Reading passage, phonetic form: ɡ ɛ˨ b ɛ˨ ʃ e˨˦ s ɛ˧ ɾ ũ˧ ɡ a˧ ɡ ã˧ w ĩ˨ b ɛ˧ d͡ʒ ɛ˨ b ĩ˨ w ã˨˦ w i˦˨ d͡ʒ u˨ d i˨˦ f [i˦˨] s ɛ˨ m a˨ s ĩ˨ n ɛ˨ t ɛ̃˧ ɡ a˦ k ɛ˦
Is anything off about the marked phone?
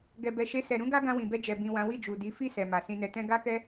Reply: no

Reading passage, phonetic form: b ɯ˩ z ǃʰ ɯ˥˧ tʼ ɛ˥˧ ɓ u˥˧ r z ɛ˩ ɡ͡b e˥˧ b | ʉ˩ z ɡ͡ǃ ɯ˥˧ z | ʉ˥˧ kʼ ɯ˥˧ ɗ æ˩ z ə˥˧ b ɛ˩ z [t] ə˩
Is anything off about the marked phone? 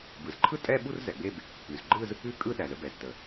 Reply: no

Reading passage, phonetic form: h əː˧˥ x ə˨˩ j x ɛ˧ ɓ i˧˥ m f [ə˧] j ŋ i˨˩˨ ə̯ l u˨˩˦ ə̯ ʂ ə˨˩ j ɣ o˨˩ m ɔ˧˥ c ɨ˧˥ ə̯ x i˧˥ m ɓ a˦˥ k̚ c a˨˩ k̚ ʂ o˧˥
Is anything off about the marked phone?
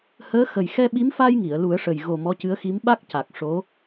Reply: yes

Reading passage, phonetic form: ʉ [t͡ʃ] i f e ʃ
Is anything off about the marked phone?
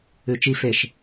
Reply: no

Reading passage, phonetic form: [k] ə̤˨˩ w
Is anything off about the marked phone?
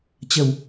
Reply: yes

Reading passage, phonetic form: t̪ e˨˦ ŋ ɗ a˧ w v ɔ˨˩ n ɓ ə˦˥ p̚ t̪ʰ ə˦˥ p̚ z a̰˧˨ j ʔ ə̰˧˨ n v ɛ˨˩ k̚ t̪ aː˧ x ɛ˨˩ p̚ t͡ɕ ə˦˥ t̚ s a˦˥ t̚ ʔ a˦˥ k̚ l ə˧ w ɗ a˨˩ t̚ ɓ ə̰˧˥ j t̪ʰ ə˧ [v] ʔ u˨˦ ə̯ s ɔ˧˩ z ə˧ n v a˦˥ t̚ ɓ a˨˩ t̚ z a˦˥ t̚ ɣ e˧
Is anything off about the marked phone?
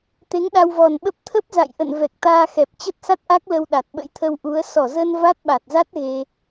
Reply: yes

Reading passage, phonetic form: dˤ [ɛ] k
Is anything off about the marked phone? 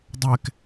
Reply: no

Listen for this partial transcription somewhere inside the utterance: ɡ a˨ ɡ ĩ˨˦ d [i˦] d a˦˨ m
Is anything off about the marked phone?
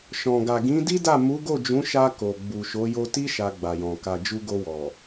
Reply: no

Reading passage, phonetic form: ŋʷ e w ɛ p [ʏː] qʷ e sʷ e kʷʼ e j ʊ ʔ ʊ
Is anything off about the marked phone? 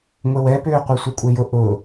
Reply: no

